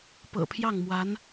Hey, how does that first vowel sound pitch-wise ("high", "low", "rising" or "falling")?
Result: low